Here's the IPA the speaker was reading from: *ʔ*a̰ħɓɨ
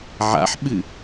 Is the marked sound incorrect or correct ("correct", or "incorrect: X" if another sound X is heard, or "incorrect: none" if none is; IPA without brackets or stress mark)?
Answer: incorrect: ʕ